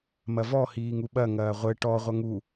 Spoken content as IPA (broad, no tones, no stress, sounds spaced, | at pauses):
m ɐ v ɔ h iː ŋ u ɓ ɐ ŋ ɐː ʁʷ ɘ ʈ ɔ ʁʷ ɐ ŋ u